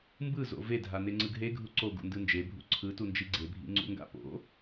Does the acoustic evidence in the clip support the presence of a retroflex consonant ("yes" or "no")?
no